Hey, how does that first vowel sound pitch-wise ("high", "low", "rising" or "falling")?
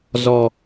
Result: low